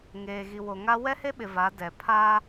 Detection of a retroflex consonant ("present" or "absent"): absent